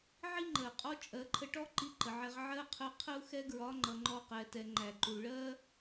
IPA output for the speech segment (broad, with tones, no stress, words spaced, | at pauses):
ʕi˥ŋ͡ǃɜ˩qʼɔ˧˥ t͡ʃʼɜ˩˧ǃʰə˧ʈɔ˥ ǃi˧˥ǃə˩ʕɛ˧ʁ ʕɜ˥qʰə˧˥ qʰə˥u̯xɛ˥ɡɹɒ˧˥ ŋ͡ǃʌ˩˧ŋ͡ǃɔ˧qɛ˩˧tɛ˩˧ ŋ͡ǃæ˩ǃu˩ ɭɜ˥